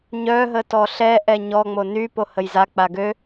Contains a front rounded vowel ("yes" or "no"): yes